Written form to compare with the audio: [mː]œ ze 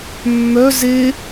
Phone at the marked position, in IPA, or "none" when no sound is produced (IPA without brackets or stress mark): mː